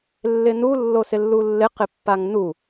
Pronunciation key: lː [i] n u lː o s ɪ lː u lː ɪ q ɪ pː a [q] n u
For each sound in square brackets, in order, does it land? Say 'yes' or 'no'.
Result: no, no

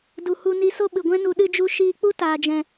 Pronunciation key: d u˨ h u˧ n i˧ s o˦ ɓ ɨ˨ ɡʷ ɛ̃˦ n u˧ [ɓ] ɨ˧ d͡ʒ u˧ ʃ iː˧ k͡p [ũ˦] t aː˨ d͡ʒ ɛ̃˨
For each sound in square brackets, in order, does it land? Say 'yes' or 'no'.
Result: no, no

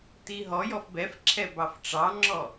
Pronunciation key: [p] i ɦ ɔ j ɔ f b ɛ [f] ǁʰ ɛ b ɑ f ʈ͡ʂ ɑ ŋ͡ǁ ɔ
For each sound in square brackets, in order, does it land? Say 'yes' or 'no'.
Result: no, yes

